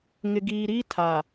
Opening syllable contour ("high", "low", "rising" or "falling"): low